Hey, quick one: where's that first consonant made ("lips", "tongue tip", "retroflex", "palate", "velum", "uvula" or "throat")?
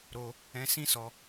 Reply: tongue tip